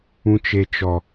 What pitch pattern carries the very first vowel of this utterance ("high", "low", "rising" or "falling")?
high